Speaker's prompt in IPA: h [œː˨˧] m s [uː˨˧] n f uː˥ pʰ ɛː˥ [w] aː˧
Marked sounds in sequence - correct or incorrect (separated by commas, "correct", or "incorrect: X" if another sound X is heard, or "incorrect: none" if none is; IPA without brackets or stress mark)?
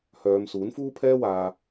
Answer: correct, incorrect: uː˨˥, correct